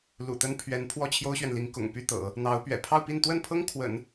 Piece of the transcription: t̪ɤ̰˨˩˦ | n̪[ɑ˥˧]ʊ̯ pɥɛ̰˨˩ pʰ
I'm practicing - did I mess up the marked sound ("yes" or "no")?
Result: yes